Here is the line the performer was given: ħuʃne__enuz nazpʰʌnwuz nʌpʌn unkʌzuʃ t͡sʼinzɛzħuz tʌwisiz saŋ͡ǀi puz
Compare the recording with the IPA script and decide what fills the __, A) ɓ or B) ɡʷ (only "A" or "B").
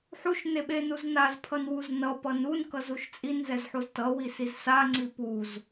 A